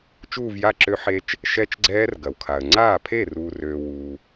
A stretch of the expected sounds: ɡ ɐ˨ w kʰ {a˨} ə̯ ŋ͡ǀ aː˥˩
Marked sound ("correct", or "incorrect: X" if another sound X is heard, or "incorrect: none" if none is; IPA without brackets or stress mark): correct